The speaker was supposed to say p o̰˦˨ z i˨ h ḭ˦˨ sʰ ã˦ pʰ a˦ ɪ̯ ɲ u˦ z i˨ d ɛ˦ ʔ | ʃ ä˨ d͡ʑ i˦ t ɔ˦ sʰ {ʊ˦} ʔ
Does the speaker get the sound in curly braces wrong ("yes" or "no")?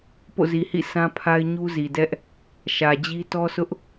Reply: no